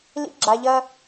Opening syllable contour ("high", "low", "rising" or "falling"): high